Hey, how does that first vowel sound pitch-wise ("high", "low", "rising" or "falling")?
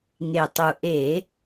low